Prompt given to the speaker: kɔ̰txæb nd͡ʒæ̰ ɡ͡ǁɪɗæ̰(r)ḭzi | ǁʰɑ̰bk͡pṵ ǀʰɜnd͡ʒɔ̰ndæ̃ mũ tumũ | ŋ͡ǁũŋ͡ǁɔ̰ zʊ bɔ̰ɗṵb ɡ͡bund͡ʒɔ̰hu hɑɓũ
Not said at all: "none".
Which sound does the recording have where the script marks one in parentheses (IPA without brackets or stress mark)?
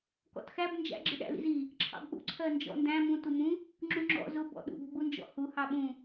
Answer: l